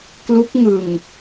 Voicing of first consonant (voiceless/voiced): voiceless